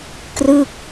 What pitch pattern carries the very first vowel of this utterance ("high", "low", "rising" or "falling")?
falling